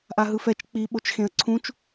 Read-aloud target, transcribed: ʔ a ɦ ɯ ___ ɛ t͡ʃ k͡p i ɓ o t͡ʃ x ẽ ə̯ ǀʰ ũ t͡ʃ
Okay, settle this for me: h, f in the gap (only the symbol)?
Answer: f